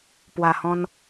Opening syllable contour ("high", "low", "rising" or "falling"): low